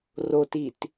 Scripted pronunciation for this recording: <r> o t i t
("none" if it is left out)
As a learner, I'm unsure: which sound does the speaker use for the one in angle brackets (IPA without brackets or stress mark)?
r